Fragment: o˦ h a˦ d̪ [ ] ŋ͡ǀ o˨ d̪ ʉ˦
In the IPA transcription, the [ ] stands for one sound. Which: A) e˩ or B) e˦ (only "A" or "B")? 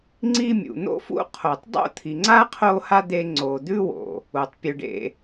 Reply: B